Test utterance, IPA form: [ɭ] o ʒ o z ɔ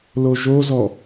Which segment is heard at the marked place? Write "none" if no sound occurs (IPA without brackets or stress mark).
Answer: l